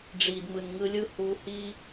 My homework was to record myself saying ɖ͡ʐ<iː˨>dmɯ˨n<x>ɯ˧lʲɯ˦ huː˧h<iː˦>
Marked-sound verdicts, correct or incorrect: correct, incorrect: ŋ, correct

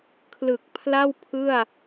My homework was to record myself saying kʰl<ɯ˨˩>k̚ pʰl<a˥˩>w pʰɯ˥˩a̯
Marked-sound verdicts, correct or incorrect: correct, correct

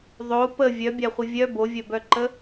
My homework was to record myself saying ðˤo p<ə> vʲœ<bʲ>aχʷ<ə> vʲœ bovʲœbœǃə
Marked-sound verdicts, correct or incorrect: correct, correct, correct

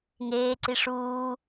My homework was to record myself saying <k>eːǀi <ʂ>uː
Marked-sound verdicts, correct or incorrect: incorrect: ŋ, correct

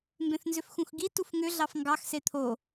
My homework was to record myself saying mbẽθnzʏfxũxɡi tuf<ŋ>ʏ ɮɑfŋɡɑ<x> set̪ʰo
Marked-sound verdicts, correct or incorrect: correct, correct

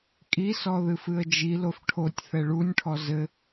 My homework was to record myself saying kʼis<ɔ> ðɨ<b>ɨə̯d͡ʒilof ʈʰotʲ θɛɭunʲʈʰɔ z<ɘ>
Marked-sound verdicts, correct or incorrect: correct, incorrect: f, correct

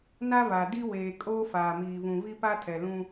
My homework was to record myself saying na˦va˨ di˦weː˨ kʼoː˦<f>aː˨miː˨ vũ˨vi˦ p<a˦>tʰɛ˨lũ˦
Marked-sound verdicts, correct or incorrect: correct, correct

